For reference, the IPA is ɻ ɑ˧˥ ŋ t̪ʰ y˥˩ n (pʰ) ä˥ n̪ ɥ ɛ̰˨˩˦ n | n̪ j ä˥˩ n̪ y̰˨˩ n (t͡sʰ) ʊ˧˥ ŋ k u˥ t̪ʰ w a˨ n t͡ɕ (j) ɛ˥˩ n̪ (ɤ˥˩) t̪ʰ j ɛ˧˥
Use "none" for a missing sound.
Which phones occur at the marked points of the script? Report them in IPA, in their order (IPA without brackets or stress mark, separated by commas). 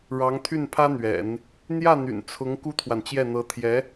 pʰ, t͡sʰ, j, ɤ˧˥